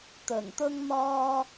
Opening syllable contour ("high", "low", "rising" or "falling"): low